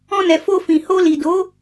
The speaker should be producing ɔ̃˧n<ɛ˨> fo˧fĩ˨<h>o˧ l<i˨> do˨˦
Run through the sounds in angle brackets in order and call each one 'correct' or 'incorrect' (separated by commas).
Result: correct, correct, correct